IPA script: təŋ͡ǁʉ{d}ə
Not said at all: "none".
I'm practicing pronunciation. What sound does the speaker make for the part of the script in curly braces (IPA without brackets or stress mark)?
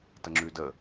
d